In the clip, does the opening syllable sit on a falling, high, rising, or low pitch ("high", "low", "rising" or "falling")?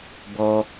high